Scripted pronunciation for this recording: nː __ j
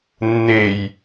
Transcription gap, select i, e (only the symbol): e